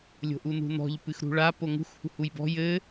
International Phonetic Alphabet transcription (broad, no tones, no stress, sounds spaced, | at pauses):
lʲ o̤ ʔ u n ṳ n ɔ̤ ʎ p ɨ x ɾ ṳ ɭ a p o ŋ ṳ x h ṳ h u j b ɔ̤ j ɘ